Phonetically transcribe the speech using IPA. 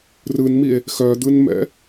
rɯnmie̯ | xœd̪ɯnmɛ̰

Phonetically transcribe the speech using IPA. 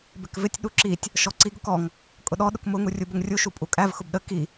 bɪkvɪtʲ ɗuǁitʲ | ʃɔǀiɡ ʊkɔŋ | kʼʊɗɔ ɗʊkmʊ ŋurʲubəŋrʲu ʃupʼukʼæv xʊbɗə ki

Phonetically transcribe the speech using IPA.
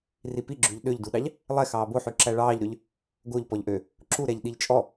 ripiɡ͡ǁʉʎ ɗøʎduɗɑʎ | lˠɛ xɑːboħʉ ǁæɭɑːʎɾøʎ | ɡoʎ pɔʎʔø | ǁuɾɛʎ ɗiʎt͡ʃʼɔ

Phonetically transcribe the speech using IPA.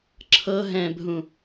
ǁʰɤɦɛ̃bʱũ

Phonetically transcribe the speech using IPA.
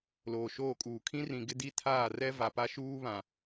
loː˨ʃoː˦˨kʼuː˨ kʰĩ˦rĩ˨ɡɪ˦ di˦tʰaː˦˨rɛ˦ va˨pa˦ʃuː˦ βã˨

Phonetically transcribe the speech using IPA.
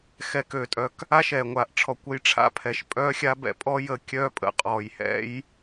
xɛ˨køː˨tʼœ˨k | a˦ʃɛː˨ ŋʷaː˨ʔ ʈ͡ʂʰɔ˨kʷə˧j ʈ͡ʂʰa̰˧pʰɛ˨ʃ pʼœː˧xʲa˧ bɛ̰˧pʼɔ˦ jə˧kʲœː˦pʼə̰˧ qʼɔː˨jhɛ̰˦j

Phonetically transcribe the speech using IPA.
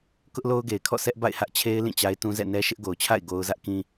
kʊ˦ʔlo˦ʊ̯ɡe˨ɪ̯kʰɔ̰˦˨ sɛ˦ʔba̰˦˨ɪ̯hä˦ʔt͡ɕʰe˦ɪ̯ lĩ˦˨t͡ɕa˦ɪ̯tũ˦ zɛ̰˦˨nɛ˦ ʃɪ˦ʔɡo˨ʊ̯t͡ɕʰa̰˦˨ɪ̯ ɡo˦ʊ̯ zä˦ʔkĩ˦

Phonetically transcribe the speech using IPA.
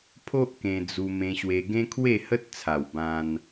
pʰo˦ʔ kẽ˧d͡zu˧ mẽ˧ɕwe˧ ɡẽ˦kʰwe˥˧hə˦t̚t͡sʰa˨˩w bã˧n

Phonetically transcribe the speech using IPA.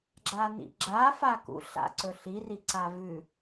ɡ͡ǁanḭɡ͡ǁa fakṵ ɬa̰ǀɵ ɬiri ǀavʉ

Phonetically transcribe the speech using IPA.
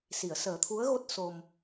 si˨˩˨ə̯səː˨˩˦t̪ʰu˧˥ə̯ɣo˦˥t̚ so˨˩m

